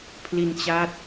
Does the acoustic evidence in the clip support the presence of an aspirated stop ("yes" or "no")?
yes